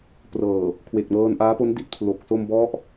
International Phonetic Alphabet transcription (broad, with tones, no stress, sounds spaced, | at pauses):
p r ɤː˨˩ | kʰ w e˨˩ k̚ n ɤː˧ n ʔ aː˦˥ p o˦˥ n d i˦˥ t̚ pʰ l o˨˩ k̚ s o˧ m b ɔ˦˥ ʔ